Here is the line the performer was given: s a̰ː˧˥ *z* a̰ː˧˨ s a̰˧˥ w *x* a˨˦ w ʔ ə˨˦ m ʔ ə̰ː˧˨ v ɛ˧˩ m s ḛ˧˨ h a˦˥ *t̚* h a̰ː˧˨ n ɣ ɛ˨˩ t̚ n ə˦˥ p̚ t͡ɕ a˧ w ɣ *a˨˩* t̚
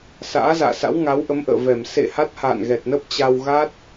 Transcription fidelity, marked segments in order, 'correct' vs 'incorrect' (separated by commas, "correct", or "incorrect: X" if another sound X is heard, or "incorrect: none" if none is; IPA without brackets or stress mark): correct, incorrect: ŋ, correct, incorrect: a˦˥